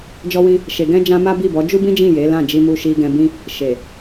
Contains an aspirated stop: no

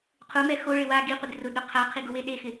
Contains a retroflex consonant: yes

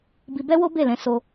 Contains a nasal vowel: yes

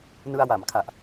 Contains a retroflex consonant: no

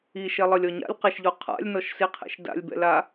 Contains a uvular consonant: yes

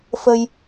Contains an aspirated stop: no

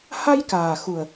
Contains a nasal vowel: no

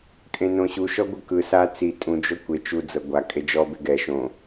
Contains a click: no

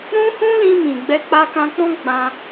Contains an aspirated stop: no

